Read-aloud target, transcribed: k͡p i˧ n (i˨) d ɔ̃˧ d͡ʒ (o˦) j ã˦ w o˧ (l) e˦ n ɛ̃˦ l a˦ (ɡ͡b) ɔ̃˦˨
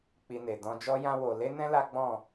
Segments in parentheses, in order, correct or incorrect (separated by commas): incorrect, incorrect, correct, correct